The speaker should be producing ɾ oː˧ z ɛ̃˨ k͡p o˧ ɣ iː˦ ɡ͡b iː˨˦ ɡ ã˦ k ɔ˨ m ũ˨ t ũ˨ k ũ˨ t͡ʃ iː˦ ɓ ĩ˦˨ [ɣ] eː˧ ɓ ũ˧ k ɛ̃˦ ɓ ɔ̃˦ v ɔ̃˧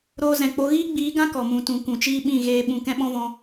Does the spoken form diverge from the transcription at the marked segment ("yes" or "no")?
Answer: no